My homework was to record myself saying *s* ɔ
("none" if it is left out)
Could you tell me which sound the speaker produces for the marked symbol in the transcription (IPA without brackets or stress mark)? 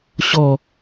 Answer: ɕ